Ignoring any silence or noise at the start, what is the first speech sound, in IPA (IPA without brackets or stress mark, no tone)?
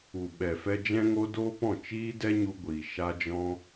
u